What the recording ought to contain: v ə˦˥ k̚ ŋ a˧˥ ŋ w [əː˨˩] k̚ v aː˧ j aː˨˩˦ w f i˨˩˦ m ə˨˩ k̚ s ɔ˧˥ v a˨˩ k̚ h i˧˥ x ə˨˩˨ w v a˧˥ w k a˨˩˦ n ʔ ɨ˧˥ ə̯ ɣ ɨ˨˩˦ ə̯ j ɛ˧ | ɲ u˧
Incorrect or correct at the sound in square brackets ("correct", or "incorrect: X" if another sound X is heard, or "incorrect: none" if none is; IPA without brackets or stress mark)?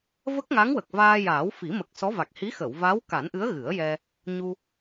incorrect: ə˨˩